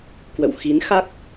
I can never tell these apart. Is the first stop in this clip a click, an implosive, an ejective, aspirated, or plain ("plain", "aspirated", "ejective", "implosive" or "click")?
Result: plain